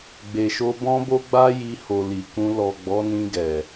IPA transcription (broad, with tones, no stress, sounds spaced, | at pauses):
ɡ͡b e˨ ʃ o˧ b ɔ̃˦ b o˦ ɡ͡b a˦ j i˧ h o˨ l i˨ k ũ˧ l ɔ˨ ɡ͡b ɔ˨˦ n ĩ˧ ɡ ɛ˨